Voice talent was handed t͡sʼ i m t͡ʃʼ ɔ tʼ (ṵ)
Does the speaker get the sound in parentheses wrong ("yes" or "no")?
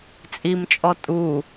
yes